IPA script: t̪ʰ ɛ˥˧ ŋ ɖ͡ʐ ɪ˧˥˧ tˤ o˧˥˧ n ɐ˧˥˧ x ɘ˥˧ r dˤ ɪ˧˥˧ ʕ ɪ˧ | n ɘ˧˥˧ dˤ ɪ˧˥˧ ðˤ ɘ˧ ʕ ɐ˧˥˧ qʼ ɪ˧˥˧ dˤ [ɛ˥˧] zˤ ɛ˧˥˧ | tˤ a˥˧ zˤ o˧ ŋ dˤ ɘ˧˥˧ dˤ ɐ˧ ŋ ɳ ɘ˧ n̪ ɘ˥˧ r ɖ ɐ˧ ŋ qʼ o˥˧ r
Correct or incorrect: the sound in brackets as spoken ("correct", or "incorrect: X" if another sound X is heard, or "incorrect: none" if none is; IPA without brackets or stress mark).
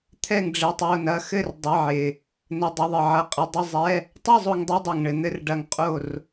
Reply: incorrect: ɪ˥˧